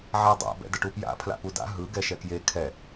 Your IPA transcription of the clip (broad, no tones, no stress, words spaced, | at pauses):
ʕadˤa̰ bɛ̰dəʈupja̰ pʰla̰puda̰ ɦɯ ɡɛʃɛkje kʰɛ